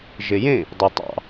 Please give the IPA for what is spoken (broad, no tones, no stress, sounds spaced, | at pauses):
ʒ ɪ j ẽ | dˤ i tˤ ɑ̰